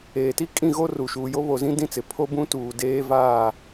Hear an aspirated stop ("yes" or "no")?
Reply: yes